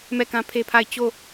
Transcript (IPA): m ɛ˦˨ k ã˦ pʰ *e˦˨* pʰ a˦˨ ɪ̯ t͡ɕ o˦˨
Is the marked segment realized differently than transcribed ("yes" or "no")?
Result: yes